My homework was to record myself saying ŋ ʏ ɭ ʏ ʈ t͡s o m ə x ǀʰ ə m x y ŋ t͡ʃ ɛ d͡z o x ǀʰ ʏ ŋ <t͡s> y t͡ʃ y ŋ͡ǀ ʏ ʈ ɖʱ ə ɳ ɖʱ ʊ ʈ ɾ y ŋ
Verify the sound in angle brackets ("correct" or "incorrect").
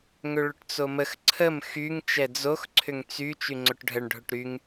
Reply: correct